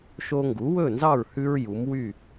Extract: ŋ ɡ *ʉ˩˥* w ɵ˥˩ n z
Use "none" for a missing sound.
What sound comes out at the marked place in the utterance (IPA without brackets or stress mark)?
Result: u˩˥